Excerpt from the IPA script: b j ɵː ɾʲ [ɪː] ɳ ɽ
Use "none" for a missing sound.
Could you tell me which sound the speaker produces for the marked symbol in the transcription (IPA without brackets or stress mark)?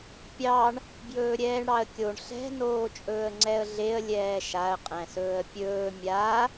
ɛː